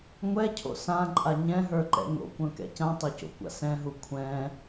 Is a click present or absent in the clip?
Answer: present